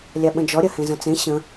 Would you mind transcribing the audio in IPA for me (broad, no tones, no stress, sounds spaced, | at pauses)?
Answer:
lʲ a ɓ ə̃ d͡ʒ ɔ ɾʲ ɐ h ẽ z ɐ̃ t͡s ẽ ɕ ə̃